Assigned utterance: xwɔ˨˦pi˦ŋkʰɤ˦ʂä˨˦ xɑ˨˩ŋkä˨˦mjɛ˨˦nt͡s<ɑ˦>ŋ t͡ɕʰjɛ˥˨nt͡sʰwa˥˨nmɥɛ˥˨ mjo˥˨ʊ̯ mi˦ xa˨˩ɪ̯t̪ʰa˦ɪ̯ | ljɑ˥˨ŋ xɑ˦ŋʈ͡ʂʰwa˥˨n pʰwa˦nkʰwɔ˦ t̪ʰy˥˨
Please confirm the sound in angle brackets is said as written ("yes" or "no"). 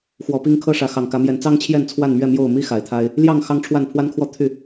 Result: yes